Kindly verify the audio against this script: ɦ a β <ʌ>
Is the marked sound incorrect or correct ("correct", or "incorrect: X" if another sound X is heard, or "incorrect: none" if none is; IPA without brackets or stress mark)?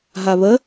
incorrect: ə